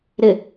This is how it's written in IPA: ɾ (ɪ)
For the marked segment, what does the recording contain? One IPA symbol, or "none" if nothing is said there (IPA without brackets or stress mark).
ɪ